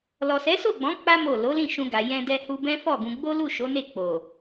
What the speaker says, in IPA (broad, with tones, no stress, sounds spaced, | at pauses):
l ɔ˨ s ɛ˨˦ s o˦˨ ɡ͡b ɔ̃˨˦ k͡p a˦ m o˦˨ l o˨˦ l ĩ˦˨ ʃ ũ˧ ɡ a˨ j ɛ̃˧ d ɛ˧ h u˧ b ɛ̃˦ f ɔ˦˨ ɡ ũ˧ ɡ͡b o˦ l u˦˨ ʃ o˨˦ n e˦˨ k͡p o˨